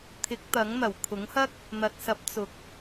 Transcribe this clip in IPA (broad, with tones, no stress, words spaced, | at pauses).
t̪ʰɪ˨˥k̚t̪ɐ˨˥ŋn̪ɐ˨˩w kʰʊ˨˥ŋhɐ˥k̚ | n̪ɐ˨t̚sɐ˨˥p̚ t͡sʊ˨k̚